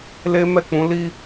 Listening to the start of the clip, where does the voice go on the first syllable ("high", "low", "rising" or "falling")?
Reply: high